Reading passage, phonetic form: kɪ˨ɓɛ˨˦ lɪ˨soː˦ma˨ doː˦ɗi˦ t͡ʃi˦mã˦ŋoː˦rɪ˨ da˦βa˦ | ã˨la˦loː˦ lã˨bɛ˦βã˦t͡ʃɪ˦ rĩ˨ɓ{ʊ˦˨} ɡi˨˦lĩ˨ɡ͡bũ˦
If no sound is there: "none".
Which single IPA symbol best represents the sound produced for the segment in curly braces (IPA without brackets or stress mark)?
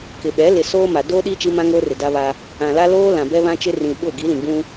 ʊ˦˨